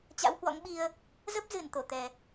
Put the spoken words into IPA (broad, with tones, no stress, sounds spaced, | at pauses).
t͡ɕ a̰˧˥ w h w ɔ̰˧˥ ŋ ɓ i˧ ə̯ | z ə˦˥ p̚ z ɨ˧˩ n t̪ o˧˩ t̪ ɛ˨˩